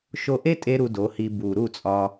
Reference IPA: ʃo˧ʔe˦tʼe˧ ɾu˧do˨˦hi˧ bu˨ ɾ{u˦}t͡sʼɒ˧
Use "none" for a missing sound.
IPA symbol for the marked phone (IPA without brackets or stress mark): u˦˨